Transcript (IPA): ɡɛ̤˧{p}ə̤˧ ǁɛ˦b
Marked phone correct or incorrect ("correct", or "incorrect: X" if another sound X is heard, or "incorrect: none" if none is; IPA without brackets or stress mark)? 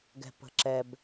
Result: correct